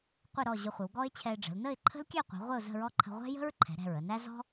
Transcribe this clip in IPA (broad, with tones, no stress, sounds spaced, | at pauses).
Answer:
qʷ ɪ˥˧ ɾ ɔ˥˧ ʑ ʊ˧ χʷ ɪ˩˧ w ɡ ɔ˥ ɪ̯ t͡ɕʰ ɛ˧ ɪ̯ ɖ͡ʐ ə̤˩˧ l n ə˥˧ ɪ̯ ǃʰ ə̤˥ l kʲ ɛ˥˧ qʷ ɛ̤˩˧ ʁʷ ɪ˥˧ ʊ̯ z ə̤˥˧ ɹ ɔ˥ ǃʰ ə̤˧ ʁʷ ɛ̤˥ j ə̤˥ ɹ ǃʰ ɛ̤˩˧ ɾ ɛ̤˧˩ ɹ ə˥˧ n æ˥ z ɔ̤˥